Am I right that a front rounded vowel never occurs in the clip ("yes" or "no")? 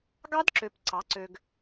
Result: no